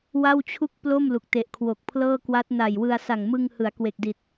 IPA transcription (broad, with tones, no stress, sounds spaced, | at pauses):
w a˥˩ w t͡ɕʰ u˥˩ k̚ p l o˥˩ m l u˨˩ k̚ t e˨˩ ʔ kʰ w o˨˩ k̚ pʰ l ɤː˥˩ k w a˦˥ t̚ n a˨˩ j w ɯ˧ a̯ s a˨˩ ŋ m ɯ˧ ŋ h ɯ˩˦ a̯ k w e˨˩ k̚ d i˨˩ t̚